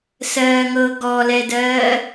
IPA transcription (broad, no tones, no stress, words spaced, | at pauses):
sɜːŋɤ ɡɔlɛdɜː